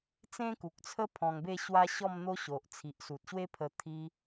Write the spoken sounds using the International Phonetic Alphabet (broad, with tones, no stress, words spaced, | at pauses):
t͡sẽ˦ku˨k̚t͡sʰə˦ pʰɔ̃˧ŋbe˥˧ɕwa˦ ɕɔ˥˧m n̪o˦ɕo˨ʔ t͡sʰi˨ʔsu˨t̚ɕwe˦pʰə˧ t̪ʰi˧